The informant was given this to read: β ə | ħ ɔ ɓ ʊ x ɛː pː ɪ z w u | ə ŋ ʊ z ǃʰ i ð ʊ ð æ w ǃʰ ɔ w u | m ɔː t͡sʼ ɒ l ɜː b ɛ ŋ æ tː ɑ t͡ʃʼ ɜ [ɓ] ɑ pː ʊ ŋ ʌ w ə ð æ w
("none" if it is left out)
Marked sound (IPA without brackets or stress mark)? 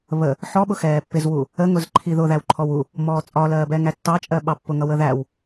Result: ɓ